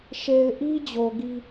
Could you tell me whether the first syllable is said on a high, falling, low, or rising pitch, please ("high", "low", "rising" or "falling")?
low